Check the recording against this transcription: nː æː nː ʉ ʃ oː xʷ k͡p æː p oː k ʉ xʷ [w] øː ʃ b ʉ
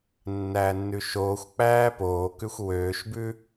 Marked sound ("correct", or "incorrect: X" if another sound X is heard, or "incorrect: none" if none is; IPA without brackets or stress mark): correct